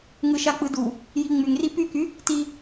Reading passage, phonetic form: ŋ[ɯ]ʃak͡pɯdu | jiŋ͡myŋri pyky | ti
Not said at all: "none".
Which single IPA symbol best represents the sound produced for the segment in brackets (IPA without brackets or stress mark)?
ɯ